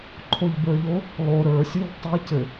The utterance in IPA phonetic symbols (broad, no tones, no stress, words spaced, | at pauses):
ǃʰoʎbə˞ʎo | lˠo ɾə˞sʲuʎ tˤɘ cɘ